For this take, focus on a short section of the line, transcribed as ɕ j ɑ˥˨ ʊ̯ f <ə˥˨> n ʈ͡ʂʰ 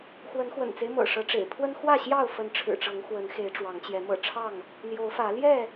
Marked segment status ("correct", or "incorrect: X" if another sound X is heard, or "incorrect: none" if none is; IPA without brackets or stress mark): incorrect: ə˨˦